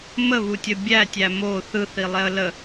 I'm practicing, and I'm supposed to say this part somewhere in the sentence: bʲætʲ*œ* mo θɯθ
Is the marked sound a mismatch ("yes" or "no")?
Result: yes